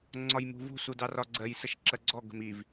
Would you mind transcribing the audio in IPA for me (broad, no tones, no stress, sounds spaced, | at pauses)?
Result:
ŋ͡ǀ ɒ j m ṳ v ṳ s u d ɑ r ɒ ɡ͡ǀ ɜ j s ə ʃ ǁ ɜ ɡ͡ǀ ɔ ɡ ə̤ m i v